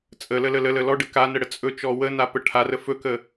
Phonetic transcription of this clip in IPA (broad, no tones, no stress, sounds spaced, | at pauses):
t͡sʼ ə l ə l ə l ə l ə l ɔ ɖ ə k a n ə ɽ ə t͡sʼ ɵ t͡ʃ ɔ w ə n a p ə ʈʰ a r ə f ɵ k ə